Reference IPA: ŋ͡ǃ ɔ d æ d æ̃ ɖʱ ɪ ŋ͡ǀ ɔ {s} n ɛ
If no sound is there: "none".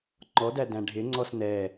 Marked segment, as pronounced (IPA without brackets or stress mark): s